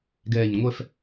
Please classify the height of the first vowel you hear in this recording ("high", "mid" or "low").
mid